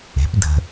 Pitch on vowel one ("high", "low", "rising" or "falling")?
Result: rising